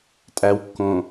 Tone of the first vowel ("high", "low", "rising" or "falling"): low